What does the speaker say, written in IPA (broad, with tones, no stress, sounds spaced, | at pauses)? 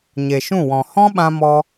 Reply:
ɲ e˨ ʃ ũ˦˨ w ɔ̃˨ h ɔ̃˦ ɓ ã˧ m ɔ˧